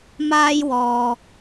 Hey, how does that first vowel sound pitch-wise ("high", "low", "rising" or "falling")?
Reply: high